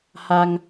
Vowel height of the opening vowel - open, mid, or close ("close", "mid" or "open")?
open